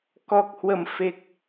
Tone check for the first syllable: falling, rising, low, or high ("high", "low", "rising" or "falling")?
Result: low